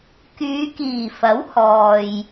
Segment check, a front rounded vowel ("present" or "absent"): present